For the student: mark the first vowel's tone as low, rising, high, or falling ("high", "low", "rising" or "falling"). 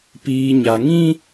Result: high